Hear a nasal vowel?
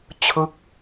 no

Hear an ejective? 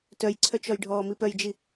no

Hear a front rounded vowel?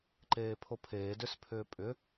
yes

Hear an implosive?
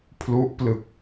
no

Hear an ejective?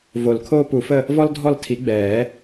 no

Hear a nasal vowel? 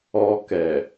no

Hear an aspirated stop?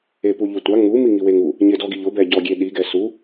no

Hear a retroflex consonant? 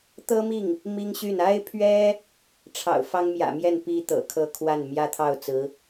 yes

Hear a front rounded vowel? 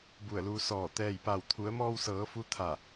no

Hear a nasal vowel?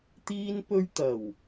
no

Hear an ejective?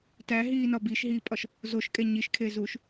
yes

